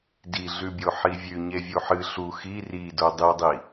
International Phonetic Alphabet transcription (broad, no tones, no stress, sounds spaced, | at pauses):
d i ɮ ʉ bʲ o ħ i vʲ ʉ ɲ e vʲ u ħ ɨ ɬ u x i r i d o dˤ i dˤ i